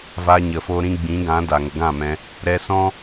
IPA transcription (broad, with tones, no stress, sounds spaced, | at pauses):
v a˧ ɲ ə˨ f o˧ ɾ ĩ˧ ɡ͡b ĩ˨˦ ɡ ã˨˦ d a˨ ŋ ə˨ ɡ ã˦˨ m ɛ̃˧ | ɾ ɛ˧ s ɔ̃˦